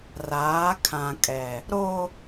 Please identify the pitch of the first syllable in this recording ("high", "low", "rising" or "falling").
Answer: rising